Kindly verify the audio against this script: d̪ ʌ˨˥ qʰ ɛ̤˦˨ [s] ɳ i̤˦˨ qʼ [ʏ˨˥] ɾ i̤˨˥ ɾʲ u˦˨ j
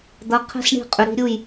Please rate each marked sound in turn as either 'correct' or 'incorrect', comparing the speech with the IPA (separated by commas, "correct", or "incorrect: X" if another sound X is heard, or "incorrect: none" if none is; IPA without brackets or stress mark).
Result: correct, correct